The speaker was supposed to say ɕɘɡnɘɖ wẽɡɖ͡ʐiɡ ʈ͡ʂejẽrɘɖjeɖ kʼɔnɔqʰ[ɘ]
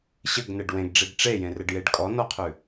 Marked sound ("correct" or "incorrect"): incorrect